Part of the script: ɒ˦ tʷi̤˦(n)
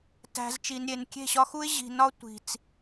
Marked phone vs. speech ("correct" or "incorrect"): incorrect